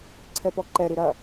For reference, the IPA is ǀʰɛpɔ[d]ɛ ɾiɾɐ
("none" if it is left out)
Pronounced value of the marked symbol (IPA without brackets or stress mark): ǃ